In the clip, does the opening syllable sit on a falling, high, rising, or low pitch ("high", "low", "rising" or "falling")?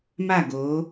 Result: falling